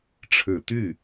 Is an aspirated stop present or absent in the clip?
present